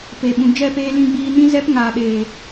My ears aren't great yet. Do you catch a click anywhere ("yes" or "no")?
no